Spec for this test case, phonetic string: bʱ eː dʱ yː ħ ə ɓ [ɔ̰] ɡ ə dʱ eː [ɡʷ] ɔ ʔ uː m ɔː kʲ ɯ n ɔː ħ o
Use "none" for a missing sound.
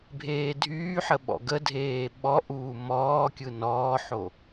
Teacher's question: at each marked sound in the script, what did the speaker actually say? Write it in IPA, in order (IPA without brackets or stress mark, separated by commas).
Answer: ɔ̰, ɓ